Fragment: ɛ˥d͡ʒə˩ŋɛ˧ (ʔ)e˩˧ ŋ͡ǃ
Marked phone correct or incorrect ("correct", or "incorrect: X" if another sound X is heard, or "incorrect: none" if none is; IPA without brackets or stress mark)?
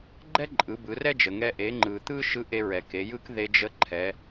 correct